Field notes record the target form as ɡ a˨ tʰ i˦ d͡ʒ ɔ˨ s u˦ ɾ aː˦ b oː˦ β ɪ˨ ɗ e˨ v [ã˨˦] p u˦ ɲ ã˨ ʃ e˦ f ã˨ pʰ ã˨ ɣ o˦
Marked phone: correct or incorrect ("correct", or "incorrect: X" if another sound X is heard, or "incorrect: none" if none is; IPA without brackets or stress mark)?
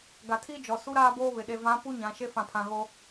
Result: correct